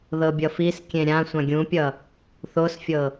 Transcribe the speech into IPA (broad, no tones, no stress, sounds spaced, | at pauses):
ð ɤ bʲ ʌ f i s kʲ ẽ ɾʲ ã sʷ ã ɡʲ ũ pʲ ʌ | θ o s fʲ ɤ